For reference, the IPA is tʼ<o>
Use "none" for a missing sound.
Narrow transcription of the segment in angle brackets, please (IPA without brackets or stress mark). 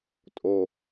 o